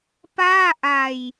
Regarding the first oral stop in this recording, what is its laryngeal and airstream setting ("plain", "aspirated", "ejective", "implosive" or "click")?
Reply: plain